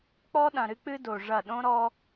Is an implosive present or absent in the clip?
present